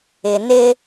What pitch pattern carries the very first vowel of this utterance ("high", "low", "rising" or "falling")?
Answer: low